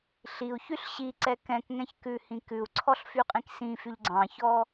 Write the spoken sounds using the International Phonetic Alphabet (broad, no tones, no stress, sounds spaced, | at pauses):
ɬ i u̯ ç y ɬ ɕ i ǀ ɛ k ɛ̃ k ŋ ɛ̃ ç k ʉ h ĩ k ʉ u̯ ǀʰ ɔ ɬ f y qʼ ĩ k s ĩ f y ʎ ɡ͡ǀ ɑ̃ ç ɔ